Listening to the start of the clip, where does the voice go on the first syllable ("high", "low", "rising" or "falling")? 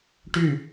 falling